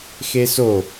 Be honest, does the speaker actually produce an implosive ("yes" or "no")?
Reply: no